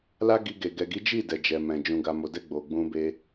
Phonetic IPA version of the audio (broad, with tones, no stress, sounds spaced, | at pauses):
l a˦ ɡ i˧ ɡ e˨ ɡ ɛ˨ ɡ i˨˦ d͡ʒ i˦˨ d ɛ˨ d͡ʒ ɛ˨ m ɛ̃˨ d͡ʒ ũ˨ ɡ a˨ m o˨ d ɛ˧ ɡ͡b o˨ ɡ͡b ũ˧ b e˧